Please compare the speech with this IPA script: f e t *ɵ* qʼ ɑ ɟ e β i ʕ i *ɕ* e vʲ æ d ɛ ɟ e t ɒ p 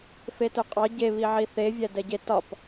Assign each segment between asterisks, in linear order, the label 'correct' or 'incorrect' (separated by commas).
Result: correct, incorrect